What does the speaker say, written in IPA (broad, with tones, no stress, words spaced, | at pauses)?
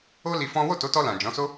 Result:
o˦ li˧fɔ̃˦ wo˦˨to˨˦tɔ˧lã˨ d͡ʒɔ̃˨˦so˦